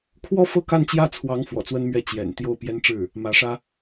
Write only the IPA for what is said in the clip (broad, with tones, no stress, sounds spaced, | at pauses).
kʰ w ɔ˥˩ f ɤ˥ k a˥˧ n t͡ɕ j ä˥˩ t͡sʰ w ɑ˧˥ ŋ f w ɔ̰˨˩ t͡s w ə˥ n m ɥ ɛ˥˩ t͡ɕ j ɛ̰˨˩ n t̪ j o˥˩ ʊ̯ p j ɛ˥ n ʈ͡ʂ ɻ̩˥˩ | m ä˧˥ ʂ ä˥